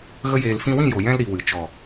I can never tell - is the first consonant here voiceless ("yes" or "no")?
no